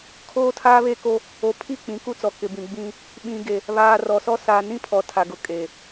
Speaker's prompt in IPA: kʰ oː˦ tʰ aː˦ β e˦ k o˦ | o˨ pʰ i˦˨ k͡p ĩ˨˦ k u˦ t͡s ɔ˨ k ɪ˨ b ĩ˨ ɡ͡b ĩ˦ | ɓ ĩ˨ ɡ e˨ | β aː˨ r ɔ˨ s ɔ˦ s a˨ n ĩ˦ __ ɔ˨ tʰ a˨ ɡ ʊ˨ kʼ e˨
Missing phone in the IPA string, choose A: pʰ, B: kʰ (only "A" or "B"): A